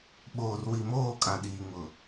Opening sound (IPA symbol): ɓ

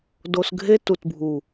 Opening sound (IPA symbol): d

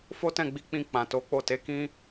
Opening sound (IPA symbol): f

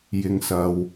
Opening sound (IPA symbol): j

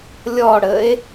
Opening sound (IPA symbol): lʲ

